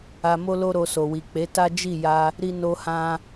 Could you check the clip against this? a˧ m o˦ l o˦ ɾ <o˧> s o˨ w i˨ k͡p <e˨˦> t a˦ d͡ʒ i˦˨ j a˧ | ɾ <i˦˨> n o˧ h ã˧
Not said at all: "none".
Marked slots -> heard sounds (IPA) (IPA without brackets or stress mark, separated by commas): o˧, e˨˦, i˧